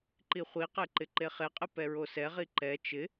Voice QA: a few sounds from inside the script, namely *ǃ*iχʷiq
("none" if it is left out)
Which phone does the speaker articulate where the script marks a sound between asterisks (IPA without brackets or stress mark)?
ǃ